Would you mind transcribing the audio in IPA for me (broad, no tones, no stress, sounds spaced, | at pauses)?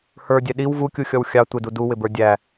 h ə˞ dʲ ɛ ɗ i w v u kʲ u xʲ ɔ w xʲ ɑ tʷ ɪ d u d u w ɪ b ə˞ dʲ æ